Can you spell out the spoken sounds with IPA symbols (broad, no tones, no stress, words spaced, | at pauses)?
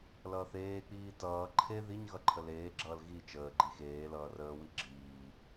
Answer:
lʌːθeːk͡piː tʌː ǃʰe ðiɲɣʌ ǃʰəleːɡ͡ǁʌːl ɣi t͡ʃəːɡ͡ǃi xeː lʌːrəːwi ɡ͡ǁiː